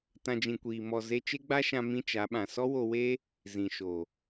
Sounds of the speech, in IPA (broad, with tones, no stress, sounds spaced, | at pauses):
t ã˦ d͡ʒ ĩ˧ kʷ iː˧ m ɔ˧ z e˦ t͡ʃ e˦ ɡ͡b a˦ ʃ ã˧ m ĩ˦ t͡ʃ a˨˦ ɓ ã˨ s ɔ˦ w o˧ w e˦ | z ĩ˨ ʃ o˨